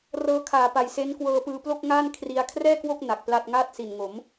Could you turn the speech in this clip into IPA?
r ɤː˦˥ kʰ aː˨˩ p a˨˩ j s e˦˥ n k w ɤː˧ p ɯː˧ p l o˥˩ k̚ ŋ aː˥˩ n kʰ r i˧ a̯ kʰ r ɛː˥˩ k w o˥˩ k̚ n a˨˩ k̚ p l a˥˩ t̚ ŋ aː˥˩ t̚ s i˨˩ n ŋ o˩˦ m

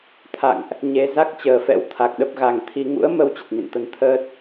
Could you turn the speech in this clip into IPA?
t̪ʰ a̰˧˨ ŋ ʔ | ɲ e˧ z a˦˥ k̚ t͡ɕ əː˨˩ f ɛ̰˧˥ w t̪ʰ a˨˩ k̚ ɗ ə˦˥ p̚ ɣ a˨˩ ŋ t̪ʰ i˧ ŋ ṵ˧˥ ə̯ m ə˧ w t͡ɕ ə˨˩ t̚ ɲ ə̰˧˨ n t̪ ə˧ n t̪ʰ əː˦˥ t̚

